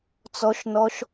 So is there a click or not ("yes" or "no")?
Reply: no